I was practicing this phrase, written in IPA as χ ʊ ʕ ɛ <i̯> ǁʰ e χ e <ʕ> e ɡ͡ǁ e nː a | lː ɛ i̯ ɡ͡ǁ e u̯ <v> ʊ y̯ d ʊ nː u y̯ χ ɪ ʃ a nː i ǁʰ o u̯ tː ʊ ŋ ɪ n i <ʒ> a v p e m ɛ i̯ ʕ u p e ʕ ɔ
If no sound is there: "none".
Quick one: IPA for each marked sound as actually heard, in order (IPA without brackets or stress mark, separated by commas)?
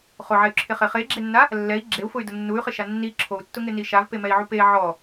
y̯, χ, f, ʃ